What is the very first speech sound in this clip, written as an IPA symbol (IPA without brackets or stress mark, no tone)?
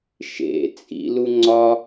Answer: ʃ